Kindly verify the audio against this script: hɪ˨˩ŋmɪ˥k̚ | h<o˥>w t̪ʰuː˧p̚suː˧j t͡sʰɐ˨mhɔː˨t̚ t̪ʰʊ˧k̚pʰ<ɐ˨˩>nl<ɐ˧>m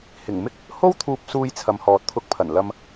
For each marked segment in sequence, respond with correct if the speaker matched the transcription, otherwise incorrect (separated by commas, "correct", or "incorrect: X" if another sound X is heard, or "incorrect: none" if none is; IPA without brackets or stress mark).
correct, correct, correct